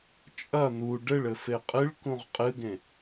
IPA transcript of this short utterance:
t͡ʃʼɐ n̪u ɖɘɭɘ feqʼɨɭkũʁ qʼɨɡẽ

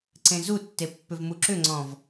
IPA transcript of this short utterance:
ǀẽzutːe pːʏvmuǁʏŋ͡ǀɔ̃v

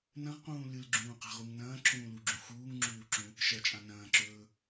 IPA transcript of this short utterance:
nɐ̃ʁqũː lɨlɡ͡ǁũːqa̤ʁuŋ nɐ̃ːǁʰũːluɡ͡ǁũ xuːŋŋ͡ǁuːǁũ | ʃɐt͡ʃʼã nɐ̃ːǁɵː

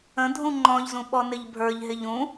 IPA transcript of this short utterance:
ə̃ dʱũŋ͡ǃɔ̃ʎzũ ɓɔnɪʎbʱə˞ʎɦɪʎ ũ

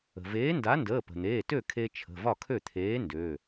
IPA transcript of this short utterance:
ə̤˩ veː˨˥nda˨˥ ndəː˩˧˩pə̤˩n̪eː˩˧˩ tø˥˩ kʰe˦t͡ʃʰə̤˩˧˩ vɒ˥˩kʰø˥˩ t̪ʰeː˨˥ ndø˩˧˩

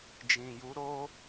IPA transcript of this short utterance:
d͡ʒĩ˨ju˨˦ɾo˦

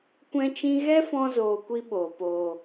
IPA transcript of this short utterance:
kʷɛ̃˧t͡ʃĩ˧ ɣɛ˦fɔ̃˧ zoː˧kʷi˦ɓoː˨ poː˨

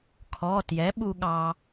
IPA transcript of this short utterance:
kʰɔː˩˧˩tjɛ˩˥ ɓu˧ɠɑ˧

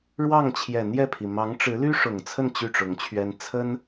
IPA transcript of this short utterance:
ɻwɑ˥˩ŋ t͡ɕʰjɛ˨˩n̪jɛ˥˩pʰi˩ mɑ˧˥ŋʈ͡ʂɻ̩˧˥ly˥ ʂʊ˨˩ŋt͡sʰə˥˧n t͡ɕy˥˩ʈ͡ʂʊ˧˥ŋt͡ɕʰɥɛ˥n t͡sʰə˥n

